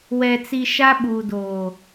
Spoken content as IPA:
w ɛ˨ t͡s i˨ ʃ a˦ ɓ uː˨ d oː˨

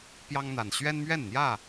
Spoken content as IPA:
p j ɑ˦ ŋ n̪ a˨˩ n ɕ ɥ ɛ˦ n m ɥ ɛ˥˨ n n̪ j ä˥˨

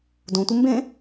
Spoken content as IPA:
d õ tʷ ɘ m b ẽ

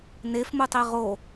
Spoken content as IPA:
n e f m u tˤ i ʁ o

